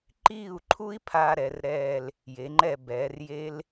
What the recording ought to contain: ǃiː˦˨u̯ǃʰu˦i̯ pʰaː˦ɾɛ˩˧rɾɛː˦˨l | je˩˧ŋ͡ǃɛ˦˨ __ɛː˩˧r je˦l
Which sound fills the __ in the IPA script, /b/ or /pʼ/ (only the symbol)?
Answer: b